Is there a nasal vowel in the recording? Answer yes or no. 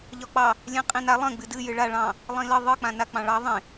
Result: yes